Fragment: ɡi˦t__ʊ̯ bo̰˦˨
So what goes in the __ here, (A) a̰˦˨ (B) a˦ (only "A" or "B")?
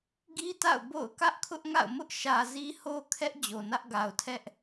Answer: A